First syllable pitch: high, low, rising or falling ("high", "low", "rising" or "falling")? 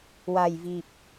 low